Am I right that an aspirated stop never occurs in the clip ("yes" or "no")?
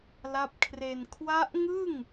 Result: no